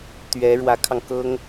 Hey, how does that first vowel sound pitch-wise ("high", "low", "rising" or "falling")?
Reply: rising